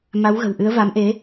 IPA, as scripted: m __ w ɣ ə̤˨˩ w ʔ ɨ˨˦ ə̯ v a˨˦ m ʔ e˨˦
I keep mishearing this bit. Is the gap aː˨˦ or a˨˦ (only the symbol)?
a˨˦